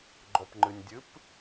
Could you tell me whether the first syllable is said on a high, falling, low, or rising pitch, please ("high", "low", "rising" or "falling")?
low